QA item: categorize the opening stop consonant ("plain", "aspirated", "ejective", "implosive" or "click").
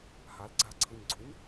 click